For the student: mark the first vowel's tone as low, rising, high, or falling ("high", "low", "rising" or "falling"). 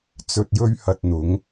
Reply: low